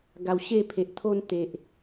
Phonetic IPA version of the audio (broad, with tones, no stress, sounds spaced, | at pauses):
ɡ a˨˩ w ɕ e˥˧ pʰ e˨ ʔ t̪ʰ o˧ n t̪ e˨ ʔ